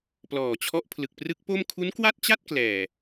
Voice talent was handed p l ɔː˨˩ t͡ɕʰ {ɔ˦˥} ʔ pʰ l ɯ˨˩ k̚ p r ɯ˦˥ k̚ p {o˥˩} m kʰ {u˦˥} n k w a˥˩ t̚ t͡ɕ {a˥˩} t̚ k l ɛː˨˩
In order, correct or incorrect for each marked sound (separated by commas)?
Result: correct, correct, correct, correct